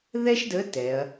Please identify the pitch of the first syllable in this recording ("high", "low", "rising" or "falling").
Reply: high